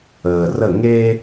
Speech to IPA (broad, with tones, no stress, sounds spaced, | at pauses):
əː˨ r ə˦˨ ŋ e˦